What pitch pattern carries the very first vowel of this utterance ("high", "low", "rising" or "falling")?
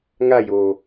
falling